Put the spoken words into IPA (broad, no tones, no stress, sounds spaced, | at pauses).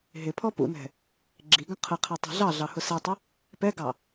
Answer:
ɦ ɪ pʰ ɔ p ṵ n ɛ̤ | ɡ͡ǁ i ɡ ə̃ qʰ ə qʰ ɛ tˤ ɛ̤ ɮ ɑ ɮ ɑ h ʊ s ɛ tˤ ɪ | p ɛ ɡ ɑ